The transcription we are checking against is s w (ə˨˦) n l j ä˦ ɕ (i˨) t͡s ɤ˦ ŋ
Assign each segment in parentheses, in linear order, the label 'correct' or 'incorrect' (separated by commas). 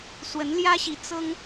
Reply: correct, correct